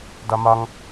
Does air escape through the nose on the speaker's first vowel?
no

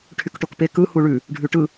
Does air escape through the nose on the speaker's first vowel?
no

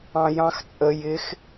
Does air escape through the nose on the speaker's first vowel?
yes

